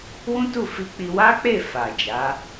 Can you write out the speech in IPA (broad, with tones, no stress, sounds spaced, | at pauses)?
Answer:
w ũ˦ t u˦˨ f i˧ k͡p i˧ w a˦ k͡p e˦˨ f a˨ d͡ʒ a˨˦